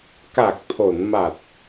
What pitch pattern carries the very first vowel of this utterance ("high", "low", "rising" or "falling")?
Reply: low